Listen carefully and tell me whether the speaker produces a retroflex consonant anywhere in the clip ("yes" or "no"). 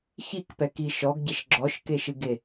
no